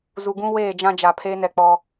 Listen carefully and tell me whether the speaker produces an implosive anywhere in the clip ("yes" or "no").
no